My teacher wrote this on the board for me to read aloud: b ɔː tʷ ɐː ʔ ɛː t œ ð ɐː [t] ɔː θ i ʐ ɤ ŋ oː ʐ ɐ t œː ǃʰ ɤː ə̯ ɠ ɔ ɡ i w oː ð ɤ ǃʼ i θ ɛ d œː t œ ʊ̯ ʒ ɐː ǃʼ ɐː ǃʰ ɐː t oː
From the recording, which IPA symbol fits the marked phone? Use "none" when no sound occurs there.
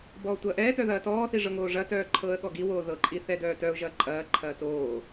t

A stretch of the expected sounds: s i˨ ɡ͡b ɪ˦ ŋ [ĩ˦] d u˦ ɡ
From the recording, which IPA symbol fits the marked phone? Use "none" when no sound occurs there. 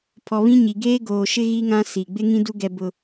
ĩ˦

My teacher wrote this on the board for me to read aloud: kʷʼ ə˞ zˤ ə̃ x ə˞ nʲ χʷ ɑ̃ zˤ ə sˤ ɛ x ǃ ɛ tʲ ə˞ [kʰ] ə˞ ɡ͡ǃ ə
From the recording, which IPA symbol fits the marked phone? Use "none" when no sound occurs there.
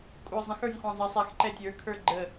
kʰ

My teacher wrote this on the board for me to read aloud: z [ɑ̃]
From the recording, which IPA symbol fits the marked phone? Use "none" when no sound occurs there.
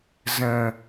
ə̃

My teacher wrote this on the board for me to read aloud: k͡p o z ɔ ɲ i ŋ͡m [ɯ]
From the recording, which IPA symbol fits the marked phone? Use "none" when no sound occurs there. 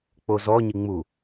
u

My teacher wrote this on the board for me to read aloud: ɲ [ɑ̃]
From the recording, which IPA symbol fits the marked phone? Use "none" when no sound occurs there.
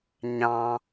ɑ̃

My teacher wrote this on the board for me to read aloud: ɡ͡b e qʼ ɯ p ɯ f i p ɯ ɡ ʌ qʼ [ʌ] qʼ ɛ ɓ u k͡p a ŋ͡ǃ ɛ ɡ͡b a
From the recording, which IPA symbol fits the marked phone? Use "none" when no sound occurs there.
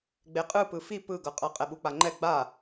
ʌ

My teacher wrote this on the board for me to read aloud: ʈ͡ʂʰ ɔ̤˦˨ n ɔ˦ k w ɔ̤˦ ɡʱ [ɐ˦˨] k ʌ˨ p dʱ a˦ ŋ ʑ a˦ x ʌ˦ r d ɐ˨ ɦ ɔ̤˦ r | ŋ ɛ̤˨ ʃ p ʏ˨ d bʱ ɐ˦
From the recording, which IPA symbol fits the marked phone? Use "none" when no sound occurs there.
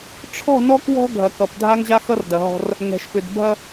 ɐ˨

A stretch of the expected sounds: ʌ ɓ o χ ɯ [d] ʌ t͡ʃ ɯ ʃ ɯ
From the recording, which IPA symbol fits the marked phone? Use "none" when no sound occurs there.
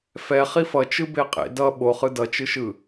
d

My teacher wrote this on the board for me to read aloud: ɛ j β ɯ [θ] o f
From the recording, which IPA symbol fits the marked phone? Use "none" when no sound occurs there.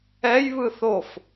θ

